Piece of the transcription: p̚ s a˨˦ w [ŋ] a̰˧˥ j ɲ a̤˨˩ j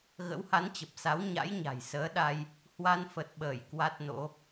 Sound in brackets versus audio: incorrect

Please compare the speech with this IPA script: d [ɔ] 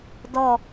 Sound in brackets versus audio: correct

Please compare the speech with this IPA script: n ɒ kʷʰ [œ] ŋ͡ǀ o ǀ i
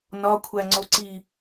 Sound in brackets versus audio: incorrect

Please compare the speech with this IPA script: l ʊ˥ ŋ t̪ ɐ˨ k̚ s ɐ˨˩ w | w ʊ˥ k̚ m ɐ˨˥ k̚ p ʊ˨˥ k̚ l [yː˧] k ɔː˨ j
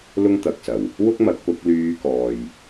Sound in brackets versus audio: correct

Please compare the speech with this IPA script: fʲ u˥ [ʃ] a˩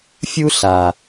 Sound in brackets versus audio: incorrect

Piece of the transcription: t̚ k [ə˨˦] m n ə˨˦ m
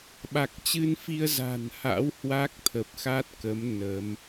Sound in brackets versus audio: correct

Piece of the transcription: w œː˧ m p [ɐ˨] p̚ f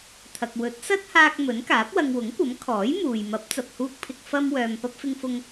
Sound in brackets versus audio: incorrect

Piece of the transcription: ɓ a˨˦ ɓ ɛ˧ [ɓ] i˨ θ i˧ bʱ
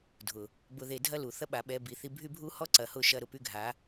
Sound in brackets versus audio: incorrect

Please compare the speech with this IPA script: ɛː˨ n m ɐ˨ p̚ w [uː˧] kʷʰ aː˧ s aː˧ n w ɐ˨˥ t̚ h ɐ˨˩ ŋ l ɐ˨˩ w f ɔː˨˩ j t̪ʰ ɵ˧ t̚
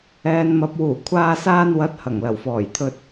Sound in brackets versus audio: incorrect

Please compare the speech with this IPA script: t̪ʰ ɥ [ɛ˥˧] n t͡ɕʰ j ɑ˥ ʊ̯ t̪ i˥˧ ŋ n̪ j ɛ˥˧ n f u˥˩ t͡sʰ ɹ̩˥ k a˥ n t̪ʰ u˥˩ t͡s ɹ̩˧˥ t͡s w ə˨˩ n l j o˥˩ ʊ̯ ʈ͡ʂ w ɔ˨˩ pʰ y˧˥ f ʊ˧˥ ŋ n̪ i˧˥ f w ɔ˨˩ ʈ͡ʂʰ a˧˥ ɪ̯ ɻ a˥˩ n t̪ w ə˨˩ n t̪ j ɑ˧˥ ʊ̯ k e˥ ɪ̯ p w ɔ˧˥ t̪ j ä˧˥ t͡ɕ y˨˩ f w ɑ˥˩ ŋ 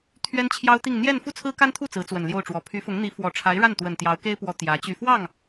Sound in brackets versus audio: incorrect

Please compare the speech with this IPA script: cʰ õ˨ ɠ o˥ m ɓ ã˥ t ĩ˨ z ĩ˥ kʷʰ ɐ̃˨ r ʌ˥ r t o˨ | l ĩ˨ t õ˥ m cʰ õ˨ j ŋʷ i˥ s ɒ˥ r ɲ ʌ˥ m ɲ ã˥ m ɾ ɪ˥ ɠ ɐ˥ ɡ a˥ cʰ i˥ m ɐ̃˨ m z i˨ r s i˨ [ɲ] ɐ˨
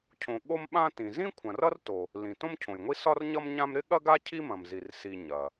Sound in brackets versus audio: correct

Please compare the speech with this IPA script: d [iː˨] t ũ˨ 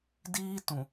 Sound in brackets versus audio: incorrect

